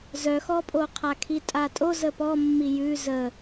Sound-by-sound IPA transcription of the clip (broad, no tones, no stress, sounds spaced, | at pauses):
z œ x ɔ pʼ o qʰ a kʰ i tʼ a tʼ o z ə p ɔ mː i j ʉ z ə